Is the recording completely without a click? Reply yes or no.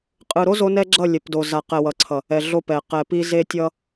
no